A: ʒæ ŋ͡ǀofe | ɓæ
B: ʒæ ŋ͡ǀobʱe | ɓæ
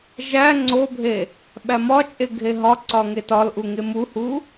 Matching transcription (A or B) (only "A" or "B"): B